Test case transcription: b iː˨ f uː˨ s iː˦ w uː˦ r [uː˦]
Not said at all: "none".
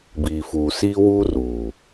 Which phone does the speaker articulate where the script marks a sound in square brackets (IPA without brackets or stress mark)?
uː˨